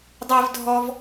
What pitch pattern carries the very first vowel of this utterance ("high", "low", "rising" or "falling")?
high